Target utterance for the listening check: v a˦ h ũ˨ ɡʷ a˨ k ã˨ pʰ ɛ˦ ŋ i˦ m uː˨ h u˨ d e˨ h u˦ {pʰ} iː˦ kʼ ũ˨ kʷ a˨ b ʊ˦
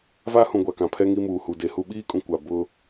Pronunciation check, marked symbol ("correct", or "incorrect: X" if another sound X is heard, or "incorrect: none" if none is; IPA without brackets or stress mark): incorrect: ɓ